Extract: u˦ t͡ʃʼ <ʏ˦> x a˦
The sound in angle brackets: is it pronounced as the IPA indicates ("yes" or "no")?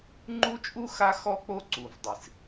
no